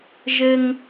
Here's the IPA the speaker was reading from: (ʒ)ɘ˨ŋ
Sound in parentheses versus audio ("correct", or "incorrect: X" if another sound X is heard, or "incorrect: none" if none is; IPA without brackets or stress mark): correct